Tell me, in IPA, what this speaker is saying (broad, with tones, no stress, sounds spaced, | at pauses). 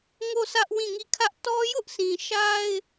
ŋ o˦˨ sʰ ä˦ ʔ w ĩ˦˨ ŋ i˦˨ kʰ ä˦ ʔ t ɔ˦ j ʊ˦ ʔ s ĩ˨ ʃ a˦ ɪ̯